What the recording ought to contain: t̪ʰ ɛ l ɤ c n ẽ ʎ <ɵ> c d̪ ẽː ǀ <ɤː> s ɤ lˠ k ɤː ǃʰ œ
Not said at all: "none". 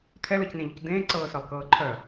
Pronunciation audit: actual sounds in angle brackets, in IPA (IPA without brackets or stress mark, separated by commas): ʊ, ɤː